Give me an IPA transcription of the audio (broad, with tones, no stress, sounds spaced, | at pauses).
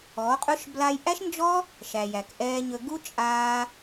ɔ˨˦ qʼ ɵ˦ ʃ b l aː˧ j ʔ æ˦ ʃ n d͡ʒ ɔ˦ | ʃ æ˨ j æ˨ k ʔ ɛː˧ ɲ ɵ˧ ɡ u˦ t͡ʃʼ aː˧